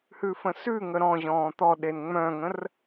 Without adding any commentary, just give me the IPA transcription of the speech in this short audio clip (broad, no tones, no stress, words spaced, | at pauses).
hʉfə̃sʉŋə ɾɔ̃ʑɔ̃ː t̪ɔɗen ŋ͡mœ̃ŋə̃r